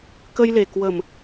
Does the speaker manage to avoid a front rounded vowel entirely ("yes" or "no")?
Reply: yes